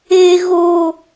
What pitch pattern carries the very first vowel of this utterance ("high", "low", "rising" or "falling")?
high